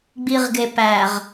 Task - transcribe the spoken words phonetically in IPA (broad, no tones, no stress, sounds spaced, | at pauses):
ɡ͡b i ʁ ɡ e p æ ʁ